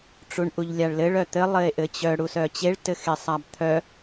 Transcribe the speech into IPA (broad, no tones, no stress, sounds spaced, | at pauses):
ʈ͡ʂ u ɳ ʔ u ʎ lʲ a ɭ l ɘ ɭ œ t̪ ɘ lˠ ɘ e̯ ʔ ɘ t͡ɕ œ ɽ u s œ t͡ɕ e ɭ t ɘ x e sˤ a b t̪ʰ œ